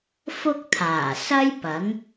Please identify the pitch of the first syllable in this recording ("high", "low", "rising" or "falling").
high